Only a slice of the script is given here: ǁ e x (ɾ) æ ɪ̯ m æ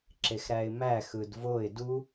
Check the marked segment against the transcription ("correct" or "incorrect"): correct